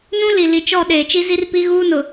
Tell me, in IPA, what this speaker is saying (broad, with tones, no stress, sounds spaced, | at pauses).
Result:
n ũ˦ l i˨ l i˨ t͡ʃ ɔ˦˨ ɗ eː˨ t͡ʃ i˦ z i˦ r p i˦ ɣ uː˦ n ʊ˨